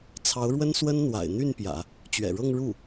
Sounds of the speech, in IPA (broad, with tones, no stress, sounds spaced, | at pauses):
t͡sʰ ɑ˧˥ ʊ̯ ɻ w ə˥ n s w ə˥ n n̪ w a̰˨˩ ɪ̯ n̪ y˥˩ n p j ä̰˨˩˦ | t͡ɕ ɥ ɛ̰˨˩ ɻ ɤ˥˧ ŋ ɻ u˥˩